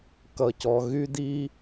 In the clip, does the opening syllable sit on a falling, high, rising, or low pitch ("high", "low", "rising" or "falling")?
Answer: low